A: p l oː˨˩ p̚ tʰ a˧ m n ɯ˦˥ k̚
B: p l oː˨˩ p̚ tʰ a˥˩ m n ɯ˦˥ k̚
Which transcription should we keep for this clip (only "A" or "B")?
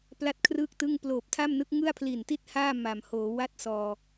B